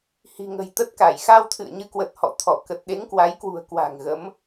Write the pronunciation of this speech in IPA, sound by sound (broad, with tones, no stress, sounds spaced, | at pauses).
h i̤˨˩ ŋ ə̤˨˩ j t̪ ə˦˥ t̚ k a˧˩ j x a˧ w t̪ʰ ɨ̰˧˨ ə̯ ɲ ɨ˨˦ k w ə˨˩ t̚ h ɔ̰˧˨ t̪ʰ ɔ˧˩ k ə˨˩ t̚ ɗ e˨˦ ŋ k w a˨˦ j k w ṳ˨˩ ə̯ k w a̤˨˩ ŋ ɣ ə˨˦ m